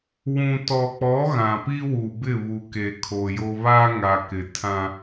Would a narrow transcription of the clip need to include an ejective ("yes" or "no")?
no